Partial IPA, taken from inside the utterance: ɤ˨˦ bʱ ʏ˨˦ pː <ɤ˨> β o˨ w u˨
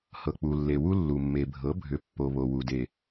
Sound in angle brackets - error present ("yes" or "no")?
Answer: yes